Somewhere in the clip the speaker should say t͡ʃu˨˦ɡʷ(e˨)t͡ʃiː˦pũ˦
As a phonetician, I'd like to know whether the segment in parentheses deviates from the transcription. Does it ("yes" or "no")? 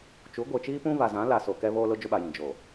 no